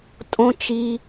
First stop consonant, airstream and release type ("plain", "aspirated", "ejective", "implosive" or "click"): ejective